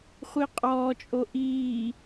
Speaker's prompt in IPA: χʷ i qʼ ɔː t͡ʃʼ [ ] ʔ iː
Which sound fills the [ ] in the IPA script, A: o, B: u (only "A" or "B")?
A